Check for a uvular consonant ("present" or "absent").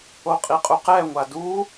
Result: present